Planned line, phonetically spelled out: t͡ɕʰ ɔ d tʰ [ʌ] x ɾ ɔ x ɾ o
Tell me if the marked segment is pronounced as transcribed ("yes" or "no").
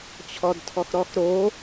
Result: no